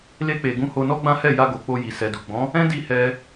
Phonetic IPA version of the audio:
l e˧ k͡p e˨ ɡ ũ˨˦ h o˧ n ɔ˦ ɡ͡b ã˦ h ɛ˦˨ j a˧ ɡ o˨ k͡p o˧ j i˨ s ɛ˨ d u˨ ɡ͡b ɔ̃˨˦ | ɛ̃˦ d i˦˨ h ɛ˧

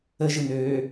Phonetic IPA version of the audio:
ə ʒ ɯ n øː

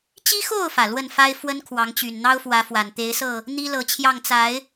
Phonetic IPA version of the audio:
t͡ɕ i˦ x o˥˨ ʊ̯ f ä˩ l w ə˥˨ n f a˦ ɪ̯ f w ə˦ n kʰ w ɑ˨˦ ŋ t͡ɕ y˨˩ n n̪ ɑ˦ ʊ̯ f w ä˨˦ f w a˨˩ n t̪ e˨˦ ɪ̯ s ɤ˥˨ | n̪ i˦ l ɤ˨˦ t͡ɕʰ j ɑ˥˨ ŋ t͡s a˨˦ ɪ̯

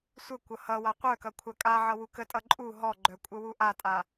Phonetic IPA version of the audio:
sʷ ə kʷ ʌ h ʌ w a qʷ œ k ʌ kʷʰ a kʼ a ʕ ʌ w u k ə tʼ ʌ ǃʼ u ɦ ɔ ɡ͡ǃ œ kʷʼ ə w u ʔ a tʼ a

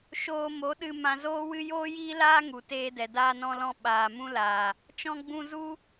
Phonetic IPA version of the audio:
ʃ oː˧ m o˨˦ ɗ ɨ˧ m ã˧ z oː˦ w ɨ˦ j oː˦ j iː˦ l aː˦ ŋ u˨ t eː˧ d ɛ˨ d aː˧ n ɔ̃˧ l ɔ̃˧ ɓ aː˨ m ũ˧ l aː˨ | t͡ʃ ɔ̃˧ ɡ͡b ũ˧ z u˦

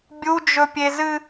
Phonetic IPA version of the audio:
bʲ u d͡ʒ ɵ pʲ e z ɨ

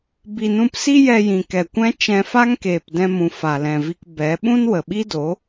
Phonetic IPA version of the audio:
b i˨ n ũ˧ p s i˦ j ɛ˧ j ĩ˨ k ɛ˨ kʷ ɛ̃˦ t͡ʃ ɛ̃˧ f a˦ ŋ k eː˨ p d ɛ̃˧ m ũ˨ f a˨ l ɛ̃˨ v i˧ k b ɛ˨˦ ɓ ũ˦ n w ə˨ ɓ i˦ d o˨˦

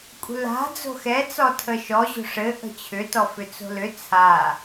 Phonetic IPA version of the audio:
kʷʼ ə̤ l a̤ d͡z o̤ x ɛ t͡s ɔ tʰ ə ʃ ɔ ʑ o̤ ʂ ɘ ʔ ə̤ t͡ɕʰ ʏ t ɔ f ʏ t͡s o̤ l ʏ t͡sʰ a

